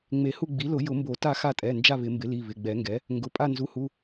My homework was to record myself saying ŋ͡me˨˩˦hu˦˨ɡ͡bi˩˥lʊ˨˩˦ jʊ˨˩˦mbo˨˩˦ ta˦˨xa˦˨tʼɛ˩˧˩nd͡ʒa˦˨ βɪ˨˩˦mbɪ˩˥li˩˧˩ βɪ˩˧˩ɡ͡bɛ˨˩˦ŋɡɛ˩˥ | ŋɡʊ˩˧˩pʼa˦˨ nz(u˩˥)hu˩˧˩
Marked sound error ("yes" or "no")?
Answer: no